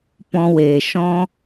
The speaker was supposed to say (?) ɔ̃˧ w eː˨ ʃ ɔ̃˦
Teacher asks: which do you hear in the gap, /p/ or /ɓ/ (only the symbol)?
p